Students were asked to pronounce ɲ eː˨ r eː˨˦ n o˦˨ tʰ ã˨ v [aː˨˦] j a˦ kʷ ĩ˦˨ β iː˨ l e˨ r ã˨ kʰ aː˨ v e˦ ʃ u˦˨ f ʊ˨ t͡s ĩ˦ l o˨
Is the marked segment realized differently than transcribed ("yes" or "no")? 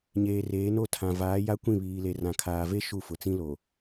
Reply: no